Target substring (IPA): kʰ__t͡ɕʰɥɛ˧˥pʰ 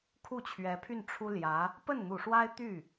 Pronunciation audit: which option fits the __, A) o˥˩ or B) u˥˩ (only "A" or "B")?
B